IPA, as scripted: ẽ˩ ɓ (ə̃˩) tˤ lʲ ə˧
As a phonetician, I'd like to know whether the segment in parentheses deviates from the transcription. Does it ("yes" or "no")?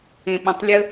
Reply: no